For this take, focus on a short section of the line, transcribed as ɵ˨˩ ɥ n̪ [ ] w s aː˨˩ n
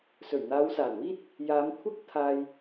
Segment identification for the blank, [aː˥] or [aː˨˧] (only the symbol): aː˨˧